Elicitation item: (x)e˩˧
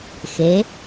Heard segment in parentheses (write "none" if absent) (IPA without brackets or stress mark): x